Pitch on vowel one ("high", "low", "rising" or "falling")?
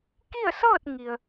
falling